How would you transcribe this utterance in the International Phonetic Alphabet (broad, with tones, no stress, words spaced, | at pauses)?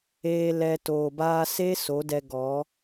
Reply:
eː˧ lɛ˧ toː˨baː˧se˦ so˨˦dɛ˧ ɡɔ˨˦